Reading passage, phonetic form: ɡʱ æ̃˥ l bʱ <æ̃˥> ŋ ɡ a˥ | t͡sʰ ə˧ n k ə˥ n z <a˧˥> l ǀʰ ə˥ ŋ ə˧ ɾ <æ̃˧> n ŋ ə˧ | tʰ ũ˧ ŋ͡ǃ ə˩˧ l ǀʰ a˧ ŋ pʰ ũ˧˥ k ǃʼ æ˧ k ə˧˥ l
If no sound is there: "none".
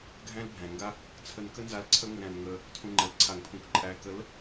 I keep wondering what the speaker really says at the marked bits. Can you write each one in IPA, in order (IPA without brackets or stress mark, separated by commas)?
æ̃˩, a˧˥, æ̃˧